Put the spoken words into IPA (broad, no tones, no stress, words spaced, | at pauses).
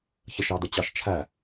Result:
çəʃɑd̪ət͡ɕɑʃ t͡ʃʰæ